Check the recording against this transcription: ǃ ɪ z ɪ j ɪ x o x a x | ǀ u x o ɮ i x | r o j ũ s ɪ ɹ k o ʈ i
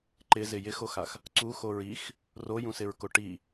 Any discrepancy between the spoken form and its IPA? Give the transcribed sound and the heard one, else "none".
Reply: ɮ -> ɹ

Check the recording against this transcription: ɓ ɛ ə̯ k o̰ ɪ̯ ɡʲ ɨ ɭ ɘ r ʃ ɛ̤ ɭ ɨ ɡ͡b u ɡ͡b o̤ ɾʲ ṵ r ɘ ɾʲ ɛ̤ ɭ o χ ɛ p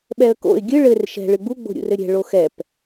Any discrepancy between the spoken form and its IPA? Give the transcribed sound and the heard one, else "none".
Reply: χ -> x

